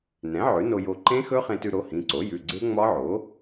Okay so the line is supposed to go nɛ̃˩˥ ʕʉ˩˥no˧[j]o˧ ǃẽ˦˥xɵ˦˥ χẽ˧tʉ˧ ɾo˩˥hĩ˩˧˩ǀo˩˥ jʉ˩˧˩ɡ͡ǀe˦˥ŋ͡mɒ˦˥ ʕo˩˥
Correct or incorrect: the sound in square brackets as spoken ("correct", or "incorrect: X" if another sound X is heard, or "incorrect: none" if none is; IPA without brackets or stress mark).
correct